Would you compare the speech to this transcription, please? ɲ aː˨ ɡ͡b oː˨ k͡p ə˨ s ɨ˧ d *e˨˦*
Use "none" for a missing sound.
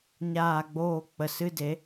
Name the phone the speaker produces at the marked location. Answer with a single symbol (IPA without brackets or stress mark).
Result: e˨˦